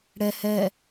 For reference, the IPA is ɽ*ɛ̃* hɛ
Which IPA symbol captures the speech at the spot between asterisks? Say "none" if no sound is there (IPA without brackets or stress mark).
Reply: ɛ